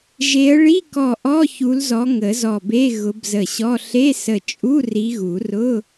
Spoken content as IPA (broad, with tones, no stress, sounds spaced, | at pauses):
ʒ e˨˦ ə̯ ɭ i˧˥˧ k ɔ˧˩ ʔ ɔ˧˥˧ ç u˨˦ l z ɔ˨˦ ŋ ə˨˩˦ z ɔ˧˩ b e˧˥˧ ɣ ʊ˨˦ b z ə˧˩ ɕ ɔ˧˥˧ ɬ e˧˥˧ s ə˧˩ t͡ʃʼ u˧˥˧ r i˨˦ ɣ u˨˩˦ r ʊ˧˥˧